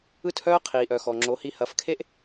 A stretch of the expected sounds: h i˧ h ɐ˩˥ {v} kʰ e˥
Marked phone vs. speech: incorrect: f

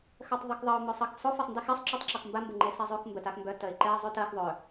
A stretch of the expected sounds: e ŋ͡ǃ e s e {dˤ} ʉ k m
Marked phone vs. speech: incorrect: zˤ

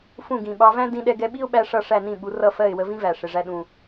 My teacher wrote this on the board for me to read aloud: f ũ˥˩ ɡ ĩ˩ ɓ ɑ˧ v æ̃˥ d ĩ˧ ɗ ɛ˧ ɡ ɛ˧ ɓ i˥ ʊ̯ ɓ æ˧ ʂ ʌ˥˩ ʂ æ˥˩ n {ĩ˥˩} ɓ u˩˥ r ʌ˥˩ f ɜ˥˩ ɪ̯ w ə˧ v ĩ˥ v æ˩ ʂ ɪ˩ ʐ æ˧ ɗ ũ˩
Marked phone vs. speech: correct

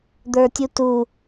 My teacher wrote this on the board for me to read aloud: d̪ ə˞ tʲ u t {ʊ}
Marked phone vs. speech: incorrect: u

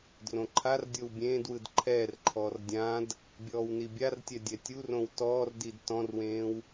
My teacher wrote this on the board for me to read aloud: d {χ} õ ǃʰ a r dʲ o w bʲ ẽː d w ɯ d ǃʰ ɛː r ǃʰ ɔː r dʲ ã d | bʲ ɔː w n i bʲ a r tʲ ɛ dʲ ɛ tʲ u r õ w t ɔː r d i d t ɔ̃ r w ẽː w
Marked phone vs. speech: incorrect: r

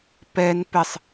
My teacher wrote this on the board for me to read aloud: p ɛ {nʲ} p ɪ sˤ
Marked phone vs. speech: incorrect: n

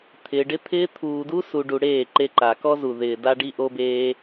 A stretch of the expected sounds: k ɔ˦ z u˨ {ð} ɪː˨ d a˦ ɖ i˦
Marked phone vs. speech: correct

